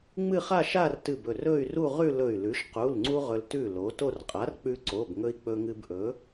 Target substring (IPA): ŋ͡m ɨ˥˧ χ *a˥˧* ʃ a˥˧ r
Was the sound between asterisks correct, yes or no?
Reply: yes